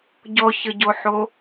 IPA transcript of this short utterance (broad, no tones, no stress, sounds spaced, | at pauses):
ɟ ɔ ç ə ɟ o ħ o